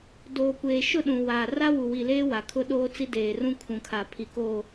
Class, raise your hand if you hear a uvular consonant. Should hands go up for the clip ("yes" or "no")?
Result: no